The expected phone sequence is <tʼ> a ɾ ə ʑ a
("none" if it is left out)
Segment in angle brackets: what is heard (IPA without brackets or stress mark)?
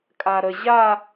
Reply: kʼ